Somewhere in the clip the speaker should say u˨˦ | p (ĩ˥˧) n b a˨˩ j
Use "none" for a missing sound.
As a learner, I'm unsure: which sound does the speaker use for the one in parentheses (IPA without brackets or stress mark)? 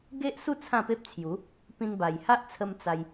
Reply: ĩ˧